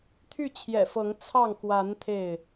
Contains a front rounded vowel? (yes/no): yes